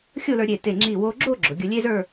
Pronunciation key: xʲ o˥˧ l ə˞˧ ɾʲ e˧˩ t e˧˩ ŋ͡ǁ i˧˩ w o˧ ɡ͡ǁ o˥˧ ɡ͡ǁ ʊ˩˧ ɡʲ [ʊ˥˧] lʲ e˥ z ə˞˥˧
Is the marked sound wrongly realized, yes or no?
yes